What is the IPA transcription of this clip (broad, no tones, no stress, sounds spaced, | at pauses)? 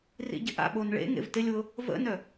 r ḭ ɟ ɪ ʔ a̰ ɓ o n ɭ ḛ ŋ ḛ v t ɪ lʲ w ʊ | v ə̰ n œ